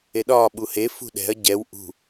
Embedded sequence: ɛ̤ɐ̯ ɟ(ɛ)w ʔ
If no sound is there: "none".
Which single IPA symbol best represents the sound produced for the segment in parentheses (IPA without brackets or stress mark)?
ɛ